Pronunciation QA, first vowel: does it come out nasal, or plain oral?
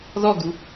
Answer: oral